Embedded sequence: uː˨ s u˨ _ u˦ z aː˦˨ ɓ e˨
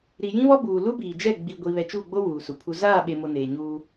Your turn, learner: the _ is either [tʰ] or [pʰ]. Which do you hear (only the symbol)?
pʰ